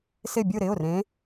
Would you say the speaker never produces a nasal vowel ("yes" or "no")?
no